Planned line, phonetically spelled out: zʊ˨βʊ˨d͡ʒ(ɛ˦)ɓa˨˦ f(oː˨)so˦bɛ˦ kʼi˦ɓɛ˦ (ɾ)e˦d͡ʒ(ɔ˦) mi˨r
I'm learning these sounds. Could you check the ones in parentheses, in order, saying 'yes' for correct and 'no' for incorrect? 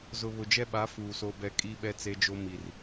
yes, no, no, no

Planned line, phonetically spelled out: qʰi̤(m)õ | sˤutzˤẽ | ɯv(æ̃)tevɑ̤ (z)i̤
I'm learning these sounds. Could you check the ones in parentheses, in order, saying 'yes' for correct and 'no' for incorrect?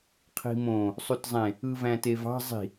yes, yes, no

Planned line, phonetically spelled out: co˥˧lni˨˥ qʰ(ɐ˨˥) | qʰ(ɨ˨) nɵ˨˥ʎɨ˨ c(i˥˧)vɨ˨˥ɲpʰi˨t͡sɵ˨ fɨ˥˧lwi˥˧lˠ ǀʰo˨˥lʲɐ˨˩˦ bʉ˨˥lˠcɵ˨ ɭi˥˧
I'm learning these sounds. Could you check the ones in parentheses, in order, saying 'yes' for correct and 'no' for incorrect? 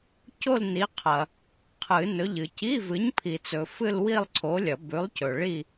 no, no, no

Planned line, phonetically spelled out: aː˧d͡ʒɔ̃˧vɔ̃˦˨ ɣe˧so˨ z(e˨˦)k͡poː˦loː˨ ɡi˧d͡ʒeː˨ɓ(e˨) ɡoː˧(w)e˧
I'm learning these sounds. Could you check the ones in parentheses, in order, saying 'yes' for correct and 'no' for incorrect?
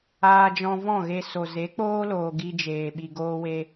yes, no, yes

